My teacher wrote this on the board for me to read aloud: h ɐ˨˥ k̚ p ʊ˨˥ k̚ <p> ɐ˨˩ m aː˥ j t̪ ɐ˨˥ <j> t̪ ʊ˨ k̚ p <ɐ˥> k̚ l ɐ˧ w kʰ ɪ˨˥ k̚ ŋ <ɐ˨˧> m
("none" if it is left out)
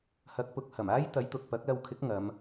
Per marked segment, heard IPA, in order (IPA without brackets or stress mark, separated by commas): h, j, ɐ˨˥, ɐ˨˧